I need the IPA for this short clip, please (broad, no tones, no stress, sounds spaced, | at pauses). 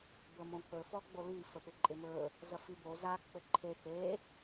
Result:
b ə m õ k͡p ɵ f ɔ ɡ͡b o l i f ə p ɪ ǃʼ ɪ m ɵ | z ɐ f i b o z a k͡p ɘ ǃʰ e p e